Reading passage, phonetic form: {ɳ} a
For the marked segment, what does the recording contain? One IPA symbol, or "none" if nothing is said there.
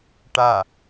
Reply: ʈ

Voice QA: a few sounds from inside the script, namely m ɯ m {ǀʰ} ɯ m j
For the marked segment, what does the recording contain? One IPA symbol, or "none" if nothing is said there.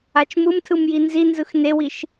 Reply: tʰ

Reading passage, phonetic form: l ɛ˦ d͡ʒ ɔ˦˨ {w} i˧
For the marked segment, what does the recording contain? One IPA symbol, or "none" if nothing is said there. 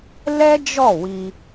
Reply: w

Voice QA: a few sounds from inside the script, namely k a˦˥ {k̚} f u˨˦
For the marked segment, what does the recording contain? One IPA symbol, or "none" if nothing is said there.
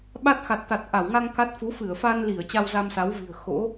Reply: t̚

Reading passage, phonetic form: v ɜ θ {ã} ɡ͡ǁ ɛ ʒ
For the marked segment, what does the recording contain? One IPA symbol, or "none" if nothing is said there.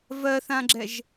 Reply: ã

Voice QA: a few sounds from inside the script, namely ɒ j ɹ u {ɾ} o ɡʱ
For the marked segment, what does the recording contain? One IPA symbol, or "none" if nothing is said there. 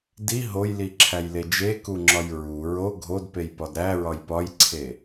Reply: ɹ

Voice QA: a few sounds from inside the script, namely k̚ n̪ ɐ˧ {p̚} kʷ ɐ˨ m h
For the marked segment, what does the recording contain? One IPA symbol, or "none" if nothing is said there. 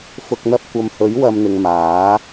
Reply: p̚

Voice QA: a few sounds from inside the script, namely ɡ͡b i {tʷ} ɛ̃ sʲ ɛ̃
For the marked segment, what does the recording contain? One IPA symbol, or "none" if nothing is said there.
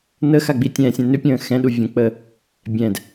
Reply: tʲ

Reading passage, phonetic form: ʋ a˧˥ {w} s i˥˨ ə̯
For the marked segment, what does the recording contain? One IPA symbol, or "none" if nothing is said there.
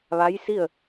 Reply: j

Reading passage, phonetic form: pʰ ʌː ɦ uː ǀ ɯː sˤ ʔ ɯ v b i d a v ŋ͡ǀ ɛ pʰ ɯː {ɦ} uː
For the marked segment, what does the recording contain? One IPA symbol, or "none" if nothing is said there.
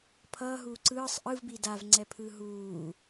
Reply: ɦ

